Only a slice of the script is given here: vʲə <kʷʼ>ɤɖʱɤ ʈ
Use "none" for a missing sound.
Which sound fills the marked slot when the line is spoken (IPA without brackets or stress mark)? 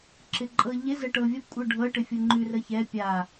kʷʼ